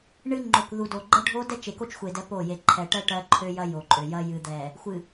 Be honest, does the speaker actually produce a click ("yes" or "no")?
yes